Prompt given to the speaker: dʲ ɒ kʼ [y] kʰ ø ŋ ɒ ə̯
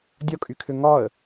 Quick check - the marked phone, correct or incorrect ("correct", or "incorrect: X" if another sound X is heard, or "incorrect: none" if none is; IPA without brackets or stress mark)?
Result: correct